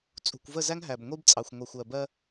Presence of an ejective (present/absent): present